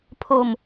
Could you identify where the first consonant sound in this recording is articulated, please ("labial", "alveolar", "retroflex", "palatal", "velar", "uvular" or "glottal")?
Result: labial